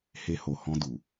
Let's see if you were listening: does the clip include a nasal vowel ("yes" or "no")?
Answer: yes